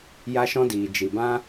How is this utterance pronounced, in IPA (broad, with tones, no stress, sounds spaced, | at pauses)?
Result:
j a˦ ʃ ɔ̃˦ d iː˨ d͡ʒ i˨ b ã˦